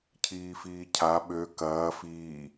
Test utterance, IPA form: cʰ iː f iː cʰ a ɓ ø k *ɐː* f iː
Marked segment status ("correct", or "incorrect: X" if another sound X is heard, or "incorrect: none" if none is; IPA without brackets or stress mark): correct